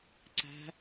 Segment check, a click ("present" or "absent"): present